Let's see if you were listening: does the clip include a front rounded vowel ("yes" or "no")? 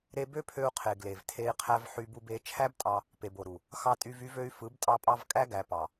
yes